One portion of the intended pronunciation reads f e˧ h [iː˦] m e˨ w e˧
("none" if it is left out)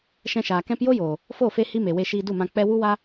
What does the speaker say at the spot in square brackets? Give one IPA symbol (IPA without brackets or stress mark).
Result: i˦